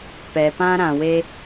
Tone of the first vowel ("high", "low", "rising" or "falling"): low